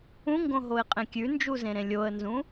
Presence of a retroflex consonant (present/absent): absent